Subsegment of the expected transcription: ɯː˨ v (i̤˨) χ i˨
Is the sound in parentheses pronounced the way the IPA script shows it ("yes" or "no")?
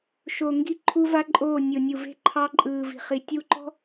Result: yes